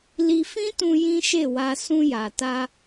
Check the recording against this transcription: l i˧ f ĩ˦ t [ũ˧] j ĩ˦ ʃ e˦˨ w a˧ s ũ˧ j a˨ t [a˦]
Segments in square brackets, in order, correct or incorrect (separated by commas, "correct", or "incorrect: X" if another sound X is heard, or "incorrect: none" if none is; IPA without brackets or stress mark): correct, incorrect: a˧